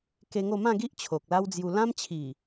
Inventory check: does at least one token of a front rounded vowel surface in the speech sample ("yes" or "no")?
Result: no